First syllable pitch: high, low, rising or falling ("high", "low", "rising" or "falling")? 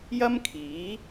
high